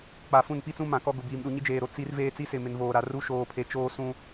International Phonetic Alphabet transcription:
k͡p a˨ f ũ˦˨ n p i˦ t͡s ũ˦ m ã˨ k ɔ˦ ɡ ʊ˨ b iː˨ m ɗ u˨ ɲ i˦ d͡ʒ eː˨ ɾ o˨ t͡s i˦ r v eː˦ t͡s i˦ s ɪ˨ m ɪ˨ n v oː˨ ɾ a˨ r u˦ ʃ oː˨ pʰ e˨ t͡ʃ oː˦ s ũ˦

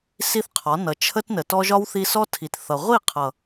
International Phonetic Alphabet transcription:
s i˦ θ qʰ ɒ˨˦ n ʌ˨ t͡ʃʰ ə˦ t n ə˨ t ɔ˦ ʒ ɒ˦ w θ i˧ s ɔ˦ tʰ i˨ t θ ʌ˨ ʁʷ i˦˨ qʰ ʌ˨

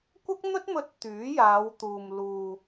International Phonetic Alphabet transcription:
kʷ ɐ˥ k̚ n̪ ɵ˥ t̚ m ɵ˧ t̚ t̪ yː˨˥ j aː˨˧ w t̪ uː˨ m l uː˨

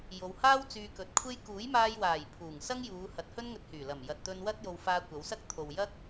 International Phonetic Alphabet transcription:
j o˨˧ w h aː˥ w t͡s yː˧ k ɵ˨˥ t̚ kʷʰ e˥ j k uː˨˥ j m aː˧ j w aː˨˩ j pʰ uː˨˩ ŋ s ɐ˥ ŋ j uː˨˧ h ɐ˨˥ t̚ h ɵ˥ n ŋ ɵ˧ t̚ h yː˨˩ l ɐ˨˩ m j ɐ˨ t̚ t̪ ɵ˧ n w ɐ˥ t̚ j o˧ w f aː˧ kʷ ɐ˨˧ w s ɐ˥ k̚ t̪ʰ o˨ w j ɐ˥ k̚

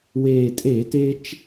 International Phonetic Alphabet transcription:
w eː˨˩ tʼ eː˧˩˧ t e˦ t͡ʃ

